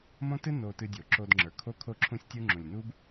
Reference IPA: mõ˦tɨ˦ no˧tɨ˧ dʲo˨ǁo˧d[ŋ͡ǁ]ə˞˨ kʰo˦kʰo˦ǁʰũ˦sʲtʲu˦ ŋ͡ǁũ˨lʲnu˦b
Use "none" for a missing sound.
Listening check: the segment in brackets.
ŋ͡ǁ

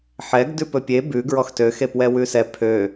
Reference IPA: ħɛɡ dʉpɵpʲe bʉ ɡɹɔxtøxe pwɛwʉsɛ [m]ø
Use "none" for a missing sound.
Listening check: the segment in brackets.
pʰ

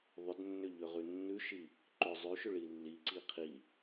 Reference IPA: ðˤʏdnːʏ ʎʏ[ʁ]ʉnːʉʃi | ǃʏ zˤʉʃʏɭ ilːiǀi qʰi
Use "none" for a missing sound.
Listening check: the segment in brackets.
ʁ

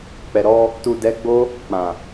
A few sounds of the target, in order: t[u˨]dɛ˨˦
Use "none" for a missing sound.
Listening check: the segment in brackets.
u˨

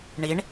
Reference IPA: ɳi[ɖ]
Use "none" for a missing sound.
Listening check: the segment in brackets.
ɳ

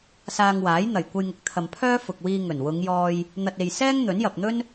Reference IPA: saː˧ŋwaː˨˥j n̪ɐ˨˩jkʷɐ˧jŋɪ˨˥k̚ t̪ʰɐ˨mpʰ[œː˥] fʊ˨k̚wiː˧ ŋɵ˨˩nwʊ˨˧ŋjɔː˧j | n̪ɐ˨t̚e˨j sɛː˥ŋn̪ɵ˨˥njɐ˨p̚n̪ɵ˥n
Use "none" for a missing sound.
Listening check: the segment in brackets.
œː˥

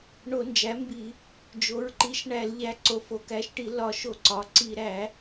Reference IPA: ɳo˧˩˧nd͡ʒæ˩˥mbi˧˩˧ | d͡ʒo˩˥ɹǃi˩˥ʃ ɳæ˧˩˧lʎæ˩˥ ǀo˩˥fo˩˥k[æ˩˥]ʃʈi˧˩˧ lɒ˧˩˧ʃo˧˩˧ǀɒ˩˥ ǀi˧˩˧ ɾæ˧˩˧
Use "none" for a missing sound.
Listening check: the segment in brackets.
æ˩˥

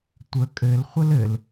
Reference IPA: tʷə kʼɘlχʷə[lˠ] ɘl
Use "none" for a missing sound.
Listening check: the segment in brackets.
l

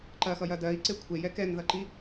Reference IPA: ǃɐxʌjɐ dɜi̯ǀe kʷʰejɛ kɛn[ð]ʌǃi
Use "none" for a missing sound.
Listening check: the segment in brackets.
ð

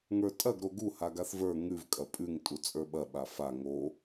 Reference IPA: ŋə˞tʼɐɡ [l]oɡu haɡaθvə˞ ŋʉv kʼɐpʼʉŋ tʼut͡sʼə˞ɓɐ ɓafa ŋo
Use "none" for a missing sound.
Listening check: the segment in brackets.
ɾ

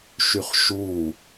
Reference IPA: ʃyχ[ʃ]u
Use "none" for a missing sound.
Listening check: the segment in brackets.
ʃ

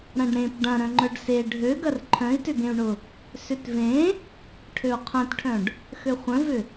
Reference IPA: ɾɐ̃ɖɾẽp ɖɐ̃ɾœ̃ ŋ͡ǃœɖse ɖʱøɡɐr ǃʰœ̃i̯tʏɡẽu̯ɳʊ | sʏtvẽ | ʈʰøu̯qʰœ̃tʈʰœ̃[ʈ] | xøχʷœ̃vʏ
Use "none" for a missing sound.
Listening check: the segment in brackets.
ɖ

